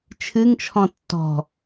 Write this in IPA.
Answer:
t͡ʃʰ ɨ ŋ t͡ʃʰ ɔ̃ tː ɔ̤

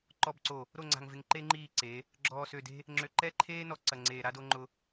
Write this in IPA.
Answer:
ǃ ɔ˨ b ǀ o˨ | ɾ o˦˨ ŋ͡ǀ a̤˨ ŋ v ɪ˨ ŋ ǃ e˦ ŋ͡ǃ iː˦˨ ǀ e˨˦ | ɡ͡ǁ ɔː˨ s ø˨ d e̤˦ | ŋ͡ǁ ø˨ ǃ ɛ˦ ǃʰ eː˦ n ɔ˨ ǀ ɐ˨ ŋ͡ǀ eː˨ ɾ a˦ d o˦ ŋ͡ǃ ʊ˦

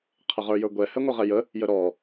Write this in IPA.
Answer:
qʰ ə ʁ ə˞ j ə˞ ɡʷ ɛ h ɛ ŋʷ ə ʁ ɛ j ə | j ə ɾ ɔ

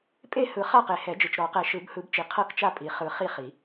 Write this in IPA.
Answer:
pʼ e˥˨ h ɯ˨˩˦ χ a˥˨ q e˨ h ɛ˨˩˦ d͡ʒ ɯ˨ t͡ʃ ɾ ɔ˨˩˦ q ɛ˨ ʃ ɯ˨˩˦ b h ɯ˨˩˦ b t͡ʃ i˨ qʰ ɤ˥˨ k t͡ʃ a˥˨ pʼ i˨˩˦ χ ɯ˨ χ i˥˨ χ i˨˩˦

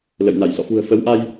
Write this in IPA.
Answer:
l ə̰˧˨ j n a˧˩ j s ɔ̰˧˨ f ṳ˨˩ ə̯ f ə˨˦ w ʔ a˧ j

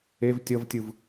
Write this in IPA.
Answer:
e v tʲ ʌ v tʲ ɯ v

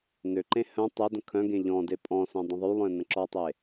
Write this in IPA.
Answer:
n ø ǃ ẽ h œ̃ tˤ e d ə̃ kʰ œ̃ ɡ ẽ ʎ ɔ̃ d e pʼ ɔ̃ s œ̃ dˤ ə̃ ðˤ y lˠ œ̃ n ə̃ ǁ ɔ tˤ e

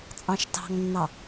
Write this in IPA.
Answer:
t͡sʼ ɑ̃ ʃ t ɑ̤ ŋ nː ɑ

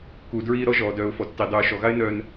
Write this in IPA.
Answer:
k u˨ d ɹ iː˧ ɾ ɔ˦ ʒ ɔː˨ d œː˨ ʊ̯ f ɔ˨ tː i˨ dˤ uː˨ ʃ ɔ˨ ɣ a˦ ɪ̯ n œː˧ n

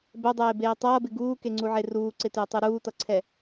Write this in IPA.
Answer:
b ɛ dˤ eː b eː tˤ ʌː b ɪ ɡ uː k e ŋ͡ǀ u ʕ e r uː ǀ ɪ t ɪː tˤ u ɾ uː t ʌ ǀʰ ɛ

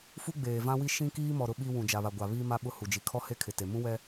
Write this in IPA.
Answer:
f u˦ ɡ͡b eː˨ v ã˦ w i˦ ʃ ĩ˦ k iː˦ m ɔ˨ ɾ ʊ˦ ɓ i˦ w ũ˨ d͡ʒ a˨ β a˨ ɡʷ a˨ β iː˦ m a˦ ɓ ʊ˦ h u˨ d͡ʒ i˨ kʰ ɔ˦ h e˦ kʰ ɪ˨ t e˨ m ũ˦ w ɛ˦

